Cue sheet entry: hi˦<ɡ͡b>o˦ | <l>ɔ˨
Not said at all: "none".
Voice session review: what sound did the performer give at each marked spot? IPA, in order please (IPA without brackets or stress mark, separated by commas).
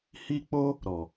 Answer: k͡p, ɾ